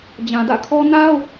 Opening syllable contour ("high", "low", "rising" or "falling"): low